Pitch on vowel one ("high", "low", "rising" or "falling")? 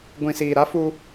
low